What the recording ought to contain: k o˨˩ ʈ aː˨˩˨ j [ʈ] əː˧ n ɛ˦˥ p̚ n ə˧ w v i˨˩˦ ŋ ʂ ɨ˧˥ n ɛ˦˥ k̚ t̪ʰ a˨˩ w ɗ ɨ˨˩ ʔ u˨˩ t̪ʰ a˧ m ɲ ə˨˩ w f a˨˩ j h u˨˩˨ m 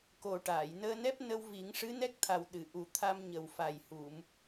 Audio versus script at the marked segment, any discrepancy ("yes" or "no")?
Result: yes